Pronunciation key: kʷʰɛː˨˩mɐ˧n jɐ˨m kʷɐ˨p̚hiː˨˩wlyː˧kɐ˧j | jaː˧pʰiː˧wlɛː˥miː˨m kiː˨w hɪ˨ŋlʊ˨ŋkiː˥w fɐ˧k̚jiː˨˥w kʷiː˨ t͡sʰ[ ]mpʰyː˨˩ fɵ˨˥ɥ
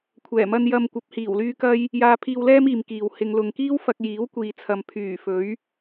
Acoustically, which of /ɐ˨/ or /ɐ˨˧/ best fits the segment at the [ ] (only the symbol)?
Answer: ɐ˨